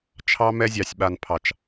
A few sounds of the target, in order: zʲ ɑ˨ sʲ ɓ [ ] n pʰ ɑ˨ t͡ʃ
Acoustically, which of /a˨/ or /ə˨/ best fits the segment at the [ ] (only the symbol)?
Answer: a˨